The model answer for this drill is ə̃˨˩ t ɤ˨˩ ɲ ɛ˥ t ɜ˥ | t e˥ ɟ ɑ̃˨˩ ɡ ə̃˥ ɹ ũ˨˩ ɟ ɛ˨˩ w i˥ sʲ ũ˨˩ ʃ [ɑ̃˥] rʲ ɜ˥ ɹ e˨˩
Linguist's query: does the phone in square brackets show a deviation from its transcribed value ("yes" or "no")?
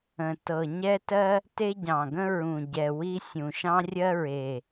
no